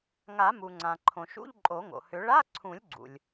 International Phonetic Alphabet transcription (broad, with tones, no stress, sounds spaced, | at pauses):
ŋ a˨˩˦ m u˩ ŋ͡ǀ ã˩ ǃʰ õ˩ ʃ ṵ˧˥˧ ʎ ǃʼ o˨˩˦ ŋ o̰˩ h ʏ˨˩˦ ɭ a˧˥˧ ǀʰ ũ˨˩˦ lʲ ɡ͡ǀ ṵ˩ lʲ